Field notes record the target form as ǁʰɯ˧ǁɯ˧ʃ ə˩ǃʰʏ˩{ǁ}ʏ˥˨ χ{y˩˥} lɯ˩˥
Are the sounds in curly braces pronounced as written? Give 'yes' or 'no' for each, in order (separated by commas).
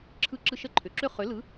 yes, no